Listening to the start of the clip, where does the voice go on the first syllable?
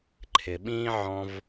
low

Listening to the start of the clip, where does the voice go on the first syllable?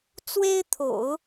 high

